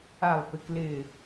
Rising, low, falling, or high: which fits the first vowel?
low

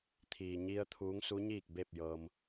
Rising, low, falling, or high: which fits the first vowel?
low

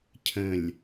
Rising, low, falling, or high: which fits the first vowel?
low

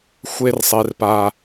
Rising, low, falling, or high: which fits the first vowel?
high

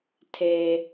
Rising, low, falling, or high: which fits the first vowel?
low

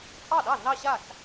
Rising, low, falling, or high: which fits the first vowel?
falling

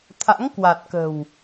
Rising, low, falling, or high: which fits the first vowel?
rising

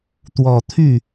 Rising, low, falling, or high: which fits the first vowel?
low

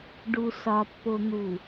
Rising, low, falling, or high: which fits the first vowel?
low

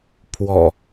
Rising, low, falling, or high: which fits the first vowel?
low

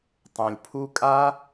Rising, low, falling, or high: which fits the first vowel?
low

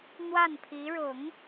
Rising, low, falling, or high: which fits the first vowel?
falling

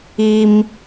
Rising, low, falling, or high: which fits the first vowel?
high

